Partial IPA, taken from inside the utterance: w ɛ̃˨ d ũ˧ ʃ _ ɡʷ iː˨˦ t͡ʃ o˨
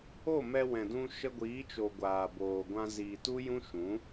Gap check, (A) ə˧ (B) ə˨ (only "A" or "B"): A